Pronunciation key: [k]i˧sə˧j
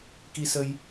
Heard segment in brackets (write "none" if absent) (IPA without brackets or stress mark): k